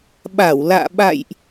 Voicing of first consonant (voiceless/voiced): voiced